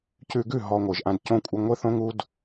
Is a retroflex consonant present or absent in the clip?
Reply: absent